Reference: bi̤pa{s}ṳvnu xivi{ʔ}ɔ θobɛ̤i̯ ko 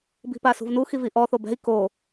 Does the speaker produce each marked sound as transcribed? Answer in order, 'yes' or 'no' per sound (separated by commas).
yes, yes